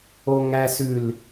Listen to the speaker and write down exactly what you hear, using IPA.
oŋæsʉl

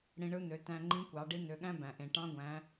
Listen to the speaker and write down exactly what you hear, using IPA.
ɽĩ˧ɳɯ˧˥n̪ø˩˧ tæ̃˧ŋ͡ǃĩ˧˥kʷɑ˩˧ ɖi˧˥n̪ø˩˧ɠæ̃˥ bæ̃˩ʔẽ˩ ʈɑ̃˧˥ɡʷæ̃˩˧

